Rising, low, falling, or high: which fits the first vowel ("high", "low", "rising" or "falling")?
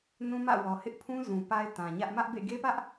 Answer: high